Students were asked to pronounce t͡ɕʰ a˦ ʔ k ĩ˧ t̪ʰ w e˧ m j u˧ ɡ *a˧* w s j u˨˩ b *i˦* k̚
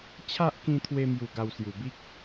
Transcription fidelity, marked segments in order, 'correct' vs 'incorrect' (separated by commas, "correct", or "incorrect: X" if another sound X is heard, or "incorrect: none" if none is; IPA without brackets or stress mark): correct, correct